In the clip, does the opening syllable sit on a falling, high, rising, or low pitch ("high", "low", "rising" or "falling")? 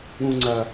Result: high